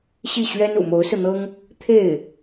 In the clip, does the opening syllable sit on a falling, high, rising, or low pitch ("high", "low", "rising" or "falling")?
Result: falling